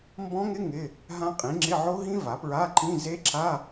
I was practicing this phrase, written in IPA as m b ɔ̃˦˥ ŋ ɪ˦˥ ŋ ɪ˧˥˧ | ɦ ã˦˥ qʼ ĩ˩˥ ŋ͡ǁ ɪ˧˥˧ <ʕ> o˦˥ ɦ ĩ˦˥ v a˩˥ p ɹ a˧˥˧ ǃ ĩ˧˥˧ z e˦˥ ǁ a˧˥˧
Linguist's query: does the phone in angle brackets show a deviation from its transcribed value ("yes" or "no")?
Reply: no